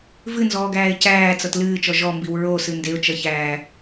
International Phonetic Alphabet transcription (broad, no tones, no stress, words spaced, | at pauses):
vɨnzɔːɡæːɪ̯ cæːt͡sʌt lɨːt͡ʃɔ ʒɔmbiw ɹosɨ ndeʊ̯t͡ʃʌçæː